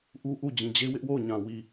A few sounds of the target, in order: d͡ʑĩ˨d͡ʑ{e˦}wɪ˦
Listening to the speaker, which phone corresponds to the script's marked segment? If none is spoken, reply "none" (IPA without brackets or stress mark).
e˦